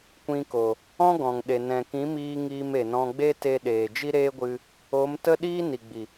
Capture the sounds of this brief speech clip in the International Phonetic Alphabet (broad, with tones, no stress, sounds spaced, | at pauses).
kʷ ĩ˧ k o˨ | ɔ̃˦ ɡ ɔ̃˨ ŋ ɗ e˨ n ɛ̃˨ k ĩ˨˦ m iː˧ ŋ iː˧ m e˨ n ɔ̃˧ ɡ͡b e˦ t e˦ ɗ eː˨ d͡ʒ i˦ ɾ eː˦ ɡʷ ɨ˧ | o˨˦ m t ə˦ ɗ iː˦ n i˨ ɡ͡b i˨